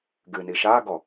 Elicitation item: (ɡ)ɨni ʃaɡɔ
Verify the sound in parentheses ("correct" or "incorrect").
correct